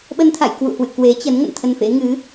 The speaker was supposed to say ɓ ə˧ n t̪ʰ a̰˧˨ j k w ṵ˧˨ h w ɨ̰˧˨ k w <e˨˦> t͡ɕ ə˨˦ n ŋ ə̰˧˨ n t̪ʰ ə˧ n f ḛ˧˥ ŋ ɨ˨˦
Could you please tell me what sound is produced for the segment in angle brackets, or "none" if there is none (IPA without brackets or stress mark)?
e˨˦